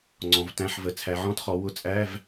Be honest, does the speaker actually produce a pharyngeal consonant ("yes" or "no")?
yes